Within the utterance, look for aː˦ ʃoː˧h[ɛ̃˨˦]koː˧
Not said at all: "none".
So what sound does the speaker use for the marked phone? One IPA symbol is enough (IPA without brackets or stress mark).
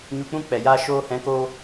ɛ̃˨˦